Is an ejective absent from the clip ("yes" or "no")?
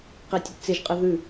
no